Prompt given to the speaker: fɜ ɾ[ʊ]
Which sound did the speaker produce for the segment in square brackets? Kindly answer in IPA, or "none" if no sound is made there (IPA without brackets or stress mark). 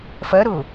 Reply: ʊ